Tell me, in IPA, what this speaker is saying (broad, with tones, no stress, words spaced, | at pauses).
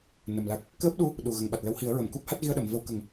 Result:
nə˨˩mla˦˥k̚ | kəː˦˥p̚ɗu˧˥ | ɗu˨˩ ɣə˨˩ŋɓa˨˩t̚lə˧whi˨˩˦ə̯ ɹə˨˩˨mku˦˥p̚ ha˦˥t̚ɣi˧ə̯ɗə˨˩˨m və˧wkə˨˩˦ŋ